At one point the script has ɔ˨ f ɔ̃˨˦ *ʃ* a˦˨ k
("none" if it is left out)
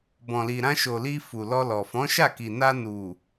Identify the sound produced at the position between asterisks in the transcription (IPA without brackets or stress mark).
ʃ